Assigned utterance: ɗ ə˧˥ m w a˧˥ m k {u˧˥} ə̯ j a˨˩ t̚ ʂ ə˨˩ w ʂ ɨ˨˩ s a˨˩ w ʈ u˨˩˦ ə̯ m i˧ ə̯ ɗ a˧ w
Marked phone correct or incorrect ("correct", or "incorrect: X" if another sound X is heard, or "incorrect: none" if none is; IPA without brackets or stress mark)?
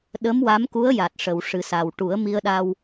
correct